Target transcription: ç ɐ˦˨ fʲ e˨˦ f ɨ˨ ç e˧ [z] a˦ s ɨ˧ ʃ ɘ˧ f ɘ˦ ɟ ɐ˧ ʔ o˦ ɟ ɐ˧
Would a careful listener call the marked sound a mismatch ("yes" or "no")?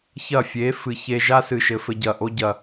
yes